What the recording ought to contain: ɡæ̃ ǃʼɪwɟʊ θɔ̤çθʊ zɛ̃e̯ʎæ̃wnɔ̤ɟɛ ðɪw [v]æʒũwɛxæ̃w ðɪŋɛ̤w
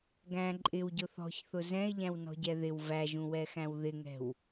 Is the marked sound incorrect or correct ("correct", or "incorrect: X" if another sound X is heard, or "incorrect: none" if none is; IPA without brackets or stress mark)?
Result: correct